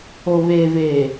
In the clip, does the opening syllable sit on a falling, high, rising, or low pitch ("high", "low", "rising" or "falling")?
low